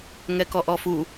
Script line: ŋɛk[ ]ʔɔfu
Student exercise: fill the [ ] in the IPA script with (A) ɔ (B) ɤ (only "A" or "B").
A